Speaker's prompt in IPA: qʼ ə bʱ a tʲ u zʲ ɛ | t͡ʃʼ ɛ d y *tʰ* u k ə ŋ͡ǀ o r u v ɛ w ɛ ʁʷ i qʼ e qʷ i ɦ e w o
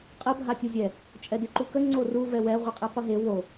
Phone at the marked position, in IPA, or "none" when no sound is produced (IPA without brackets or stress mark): ǃ